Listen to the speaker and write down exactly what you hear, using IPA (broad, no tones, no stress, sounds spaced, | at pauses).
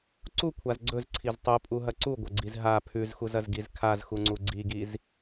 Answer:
ǀ u kʷʰ a z ɡ͡ǀ ɵ z ǀʰ i z tˤ u pʼ u ɦ ɐ ǀ u ɡʷ ɐ ɡ͡ǀ i z ɦ a pʰ ʉ z x u z ɐ z ɡ i z kʰ a z x u ŋ͡ǀ u ɡ͡ǀ i ɡ i z